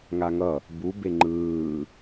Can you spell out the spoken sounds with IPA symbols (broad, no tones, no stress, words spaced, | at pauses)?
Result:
ŋaŋʌ | bu beŋ͡ǃɯː